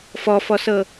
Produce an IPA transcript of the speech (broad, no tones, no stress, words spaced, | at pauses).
fɔfɔsɤ